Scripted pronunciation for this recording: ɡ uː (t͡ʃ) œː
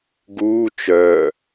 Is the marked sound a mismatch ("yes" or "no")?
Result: no